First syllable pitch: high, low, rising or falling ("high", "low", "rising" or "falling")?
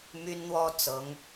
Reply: high